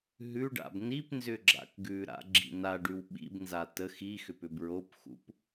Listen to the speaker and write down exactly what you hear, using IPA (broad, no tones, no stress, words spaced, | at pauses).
ɦʉɖa̰b nip nzʏɡ͡ǁa̰kɡʉɾa̰ ɡ͡ǁḭnaɖʉw ɓḭbnza tə xixʏp ʏbɹopxṵp